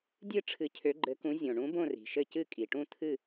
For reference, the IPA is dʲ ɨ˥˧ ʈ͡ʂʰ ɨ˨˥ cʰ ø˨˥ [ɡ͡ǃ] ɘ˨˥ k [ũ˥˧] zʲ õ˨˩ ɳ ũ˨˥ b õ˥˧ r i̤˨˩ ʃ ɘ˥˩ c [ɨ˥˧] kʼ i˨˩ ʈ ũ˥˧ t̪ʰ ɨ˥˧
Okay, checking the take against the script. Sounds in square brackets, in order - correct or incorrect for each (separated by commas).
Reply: correct, incorrect, correct